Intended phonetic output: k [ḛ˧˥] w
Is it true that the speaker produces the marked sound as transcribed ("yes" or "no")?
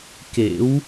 yes